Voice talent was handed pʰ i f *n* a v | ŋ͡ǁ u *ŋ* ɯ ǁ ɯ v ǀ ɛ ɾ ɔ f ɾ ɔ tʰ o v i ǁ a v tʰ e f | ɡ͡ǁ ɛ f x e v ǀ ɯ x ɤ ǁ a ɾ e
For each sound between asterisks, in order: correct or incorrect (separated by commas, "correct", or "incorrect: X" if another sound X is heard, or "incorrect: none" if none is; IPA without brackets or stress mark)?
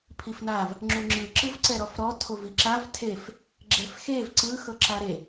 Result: correct, incorrect: ŋ͡ǁ